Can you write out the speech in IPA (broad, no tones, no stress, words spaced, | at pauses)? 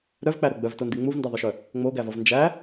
ɾœvk͡pæɾo ɡ͡bœvtondi ŋ͡muvndʌðˤœʃœ | ŋ͡moɡævʌv nd͡ʒæ